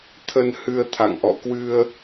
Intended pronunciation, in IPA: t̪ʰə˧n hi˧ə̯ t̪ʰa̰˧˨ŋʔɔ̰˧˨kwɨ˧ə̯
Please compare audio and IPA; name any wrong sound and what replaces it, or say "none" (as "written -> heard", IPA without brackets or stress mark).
i˧ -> ɨ˧